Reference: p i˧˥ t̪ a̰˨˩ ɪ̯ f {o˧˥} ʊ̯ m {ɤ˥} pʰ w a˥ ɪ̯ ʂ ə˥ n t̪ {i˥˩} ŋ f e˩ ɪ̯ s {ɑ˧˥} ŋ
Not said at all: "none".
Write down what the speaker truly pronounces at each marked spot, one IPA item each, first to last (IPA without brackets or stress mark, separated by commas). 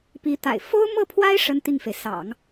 o˥, ɤ˥˩, i˥˩, ɑ̰˨˩˦